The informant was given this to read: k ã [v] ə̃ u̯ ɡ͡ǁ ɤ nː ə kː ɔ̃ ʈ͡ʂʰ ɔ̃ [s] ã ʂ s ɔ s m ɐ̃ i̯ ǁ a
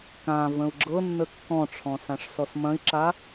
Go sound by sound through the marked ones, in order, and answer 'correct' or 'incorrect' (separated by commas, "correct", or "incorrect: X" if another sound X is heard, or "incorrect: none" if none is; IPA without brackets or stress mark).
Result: correct, correct